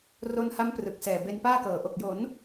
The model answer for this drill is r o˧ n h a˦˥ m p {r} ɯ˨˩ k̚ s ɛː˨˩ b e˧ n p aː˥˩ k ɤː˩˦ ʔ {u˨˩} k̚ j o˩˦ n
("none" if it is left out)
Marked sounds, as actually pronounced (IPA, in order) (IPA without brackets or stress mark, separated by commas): r, o˨˩